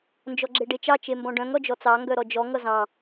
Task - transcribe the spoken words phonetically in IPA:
n d͡ʒ ɔ ɡ͡ǁ e ɖ e t͡ʃ ɑ t͡ʃ e m b ɔ̃ ɖ œ̃ ŋ ɾ ɔ d͡ʒ ɔ t͡s ɑ ŋ ɡ œ ɾ ɔ d͡ʒ ɔ ŋ ʌ z ɑ̃

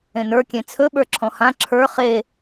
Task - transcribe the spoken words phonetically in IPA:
ẽ n ə˞ kʲ ẽ t͡sʰ ɵ ɓ ə˞ ǁʰ ɔ̃ h ã ǁʰ ə˞ χ e

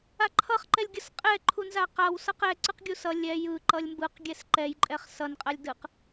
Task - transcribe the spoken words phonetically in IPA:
a ǃʰ ʌ χ ǃ ɛ lʲ ɡʲ ʌ s qʼ ɛ ǃʰ u n z a q a w s ʌ q ɛ ǀ ɯ q ɡʲ u s ʌ lʲ ɛ j ɯ ǃ ʌ lʲ m b ɯ q ɡʲ ɛ s ǃ ɛ j ǃʼ ɛ χ s ʌ n qʼ a lʲ d ɯ q

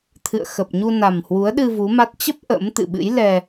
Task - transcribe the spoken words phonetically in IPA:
t̪ʰ ɨ̰˧˨ ə̯ x ə˨˩ p̚ ɲ u˧ n a˨˩ m h w u˨˦ ə̯ ɗ ɨ˧ v u˨˦ m a˦˥ t̚ t͡ɕ ə˦˥ p̚ ʔ ə̰˧˥ m t̪ ɨ̰˧˨ ɓ ɨ̰˧˥ j l ɛ˧

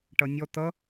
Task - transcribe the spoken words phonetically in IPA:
ʈ ʌ nʲ ɔ t̪ ʌ

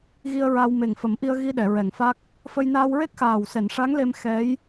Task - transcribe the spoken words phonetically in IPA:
ɣ i˧ ə̯ ɹ a˧ w m e˨˩ ŋ f ə˨˩˦ m ʔ i˧ ə̯ ɣ i˧ ɗ ɛ˨˩˨ ɹ ɛ˨˩˨ ŋ f a˦˥ k̚ | f ə˧ j n aː˧ w ɹ e˦˥ k̚ x aː˨˩ w s ɛ˨˩˨ n ʂ a˧˥ ŋ l e˧ m x ɛ˧˥ j

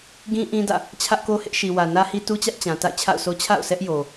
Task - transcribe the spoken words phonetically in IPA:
ɡ ĩ˦ ʔ ĩ˦ d ä̰˦˨ | t͡ɕʰ ä˦ ʔ k o˦ h ɪ˦ ʔ ʃ i˨ w ä˨ n ä˦ h i˦ t u˦ t͡ɕ ä˦ ʔ t͡ɕ ã˨ t a̰˦˨ ɪ̯ t͡ɕʰ a̰˦˨ ʊ̯ s o˦ t͡ɕʰ a̰˦˨ ʊ̯ s ɛ˦ ʔ j o˨

